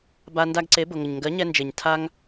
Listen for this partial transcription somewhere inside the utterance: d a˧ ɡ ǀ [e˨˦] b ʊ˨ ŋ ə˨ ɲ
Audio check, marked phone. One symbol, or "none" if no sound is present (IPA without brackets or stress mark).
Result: e˨˦